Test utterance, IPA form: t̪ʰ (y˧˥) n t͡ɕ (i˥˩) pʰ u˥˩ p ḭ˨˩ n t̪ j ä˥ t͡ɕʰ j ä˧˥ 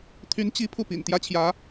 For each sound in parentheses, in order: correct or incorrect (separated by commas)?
correct, incorrect